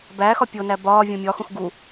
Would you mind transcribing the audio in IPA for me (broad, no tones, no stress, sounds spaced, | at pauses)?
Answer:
b æ x ɒ pʲ o n æ b ɒː vʲ õ mʲ ɒ x ũ x ɡ u